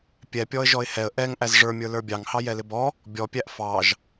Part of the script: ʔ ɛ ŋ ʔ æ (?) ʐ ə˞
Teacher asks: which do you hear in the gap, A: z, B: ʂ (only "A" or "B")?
A